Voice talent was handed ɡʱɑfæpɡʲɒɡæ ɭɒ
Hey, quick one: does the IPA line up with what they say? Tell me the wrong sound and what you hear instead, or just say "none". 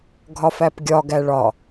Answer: ɑ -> ɒ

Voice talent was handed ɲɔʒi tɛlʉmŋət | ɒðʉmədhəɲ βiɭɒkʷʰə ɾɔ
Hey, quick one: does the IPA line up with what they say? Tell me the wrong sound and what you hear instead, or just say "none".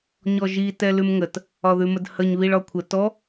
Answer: ɾ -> t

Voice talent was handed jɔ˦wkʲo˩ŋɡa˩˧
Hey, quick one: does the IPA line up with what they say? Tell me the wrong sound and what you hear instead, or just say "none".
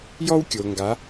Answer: none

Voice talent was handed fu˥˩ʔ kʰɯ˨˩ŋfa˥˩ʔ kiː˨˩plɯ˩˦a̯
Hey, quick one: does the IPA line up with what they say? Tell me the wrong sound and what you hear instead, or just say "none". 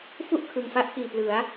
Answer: none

